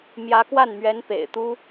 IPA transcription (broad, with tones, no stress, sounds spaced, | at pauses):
m j ä˧˥ k w a˥˩ n m ɥ ɛ˧˥ n p ḛ˨˩ ɪ̯ t̪ u˥